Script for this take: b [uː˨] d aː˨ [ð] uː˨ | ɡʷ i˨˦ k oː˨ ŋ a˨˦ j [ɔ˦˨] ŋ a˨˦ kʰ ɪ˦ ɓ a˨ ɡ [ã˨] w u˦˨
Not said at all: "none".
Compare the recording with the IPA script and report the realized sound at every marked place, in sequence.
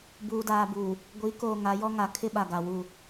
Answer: uː˨, b, ɔ˦, a˨

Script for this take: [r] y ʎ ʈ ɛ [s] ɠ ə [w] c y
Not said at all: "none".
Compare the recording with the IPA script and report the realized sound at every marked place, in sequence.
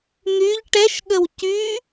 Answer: n̪, ʃ, w

